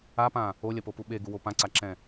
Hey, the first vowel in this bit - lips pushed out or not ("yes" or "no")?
no